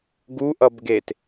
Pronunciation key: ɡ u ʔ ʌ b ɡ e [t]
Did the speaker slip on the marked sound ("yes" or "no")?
no